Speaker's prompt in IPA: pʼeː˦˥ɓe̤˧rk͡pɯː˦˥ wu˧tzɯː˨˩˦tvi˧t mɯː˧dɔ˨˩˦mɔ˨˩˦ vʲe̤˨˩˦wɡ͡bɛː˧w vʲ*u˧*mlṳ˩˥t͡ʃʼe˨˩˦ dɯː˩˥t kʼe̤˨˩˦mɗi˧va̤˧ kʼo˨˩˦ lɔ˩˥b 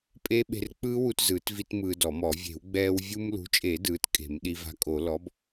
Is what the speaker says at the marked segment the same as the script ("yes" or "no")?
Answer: yes